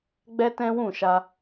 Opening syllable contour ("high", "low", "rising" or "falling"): high